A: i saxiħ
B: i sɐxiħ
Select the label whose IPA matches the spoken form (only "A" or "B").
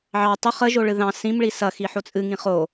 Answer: B